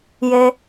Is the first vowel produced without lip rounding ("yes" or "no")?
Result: yes